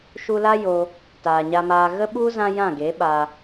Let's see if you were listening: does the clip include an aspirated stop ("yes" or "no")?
no